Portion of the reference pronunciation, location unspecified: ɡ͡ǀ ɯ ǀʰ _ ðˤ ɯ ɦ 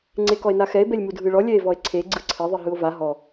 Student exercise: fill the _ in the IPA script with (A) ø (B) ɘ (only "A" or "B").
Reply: B